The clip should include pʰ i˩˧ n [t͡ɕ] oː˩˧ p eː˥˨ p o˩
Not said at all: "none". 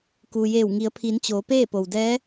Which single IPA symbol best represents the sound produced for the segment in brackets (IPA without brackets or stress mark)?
t͡ɕ